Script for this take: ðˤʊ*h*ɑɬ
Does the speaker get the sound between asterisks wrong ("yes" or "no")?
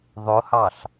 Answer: no